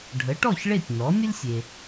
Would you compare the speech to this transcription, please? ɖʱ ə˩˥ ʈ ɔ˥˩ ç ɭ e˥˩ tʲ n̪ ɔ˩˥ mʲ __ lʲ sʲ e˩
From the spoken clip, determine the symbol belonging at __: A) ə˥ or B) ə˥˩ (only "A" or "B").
A